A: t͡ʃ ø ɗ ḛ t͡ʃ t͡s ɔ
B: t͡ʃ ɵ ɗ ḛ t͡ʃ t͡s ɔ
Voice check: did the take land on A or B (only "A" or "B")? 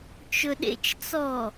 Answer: B